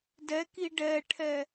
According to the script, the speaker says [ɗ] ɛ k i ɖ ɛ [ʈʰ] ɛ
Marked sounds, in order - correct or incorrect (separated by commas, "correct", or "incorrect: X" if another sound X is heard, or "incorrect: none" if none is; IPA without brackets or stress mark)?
incorrect: d, correct